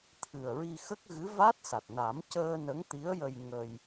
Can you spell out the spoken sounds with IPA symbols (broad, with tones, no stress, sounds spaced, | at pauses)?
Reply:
t̪ʰ ɨ˨˩ ə̯ ɹ i˧ x ə˦˥ k̚ ɣ ɨ˧˥ v a˦˥ t̚ s a˨˩ t̚ n a˨˩˦ m c əː˧ n ə˧˥ ŋ t̪ i˧˥ ə̯ j ə˧ j ŋ ə˧ j